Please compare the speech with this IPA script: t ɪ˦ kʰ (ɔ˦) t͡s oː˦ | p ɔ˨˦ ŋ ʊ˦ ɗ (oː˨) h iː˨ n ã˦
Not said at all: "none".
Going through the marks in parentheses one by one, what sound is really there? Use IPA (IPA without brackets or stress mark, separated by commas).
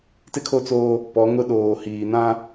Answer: o˦, oː˨